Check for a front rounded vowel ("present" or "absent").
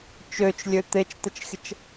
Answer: present